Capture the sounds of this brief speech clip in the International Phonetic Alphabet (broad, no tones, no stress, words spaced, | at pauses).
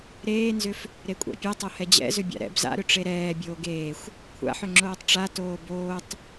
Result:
ɾeːnzʏf | ɾekʷʼa̰pʲɛtˤo hɛd͡ʑɛ̰zʏ bʲa̰ɾɛ̰b za̰ɾʏ ʈ͡ʂeɾɛː bʲoːɡeːxʷ | kʷʰa̰ħʏ ŋ͡ǁoːtˤʈ͡ʂa toːboːtˤ